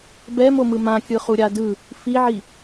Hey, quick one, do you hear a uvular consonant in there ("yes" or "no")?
yes